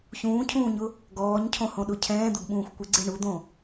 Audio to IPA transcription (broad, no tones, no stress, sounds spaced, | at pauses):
ç ũː cʰ ũː ɲ ʊ | ɡ ɔː ɲ cʰ õ h õ ɗ ʊ cʰ ɛ̃ː d̪ ʊ ɡ ɓ ũː xʷ kʷ ɪ ɡ͡ǀ e ɳ u d̪ õ